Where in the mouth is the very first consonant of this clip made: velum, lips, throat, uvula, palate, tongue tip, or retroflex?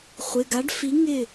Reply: uvula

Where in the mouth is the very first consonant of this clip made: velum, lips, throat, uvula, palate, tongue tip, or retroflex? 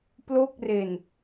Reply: lips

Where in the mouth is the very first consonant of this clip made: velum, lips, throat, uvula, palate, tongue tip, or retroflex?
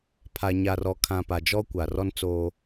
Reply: lips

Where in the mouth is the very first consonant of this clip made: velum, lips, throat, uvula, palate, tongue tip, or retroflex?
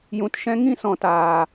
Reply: palate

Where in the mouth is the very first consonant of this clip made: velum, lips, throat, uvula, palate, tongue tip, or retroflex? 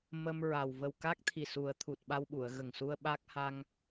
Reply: lips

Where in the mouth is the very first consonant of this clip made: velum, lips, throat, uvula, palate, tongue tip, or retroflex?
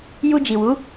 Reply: palate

